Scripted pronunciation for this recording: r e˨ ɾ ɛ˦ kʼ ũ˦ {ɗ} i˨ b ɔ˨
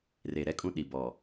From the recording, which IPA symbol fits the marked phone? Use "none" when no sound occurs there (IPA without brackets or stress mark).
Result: ɗ